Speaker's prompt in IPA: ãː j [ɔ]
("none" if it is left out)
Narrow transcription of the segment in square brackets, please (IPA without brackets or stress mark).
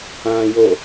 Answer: o